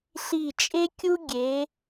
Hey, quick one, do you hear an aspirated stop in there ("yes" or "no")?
no